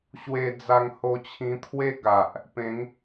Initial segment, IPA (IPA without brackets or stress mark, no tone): ɕ